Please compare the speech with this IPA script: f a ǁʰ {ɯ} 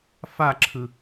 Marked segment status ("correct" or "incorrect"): correct